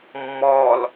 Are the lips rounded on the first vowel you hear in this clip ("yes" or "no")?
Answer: yes